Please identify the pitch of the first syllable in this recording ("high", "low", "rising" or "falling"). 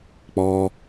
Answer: high